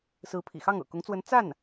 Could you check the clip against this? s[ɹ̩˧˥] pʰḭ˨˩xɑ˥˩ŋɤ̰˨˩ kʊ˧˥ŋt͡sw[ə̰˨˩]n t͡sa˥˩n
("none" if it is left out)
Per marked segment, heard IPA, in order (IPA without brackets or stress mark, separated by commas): ɹ̩˧˥, ə˧˥